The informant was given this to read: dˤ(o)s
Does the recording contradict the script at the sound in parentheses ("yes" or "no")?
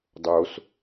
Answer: no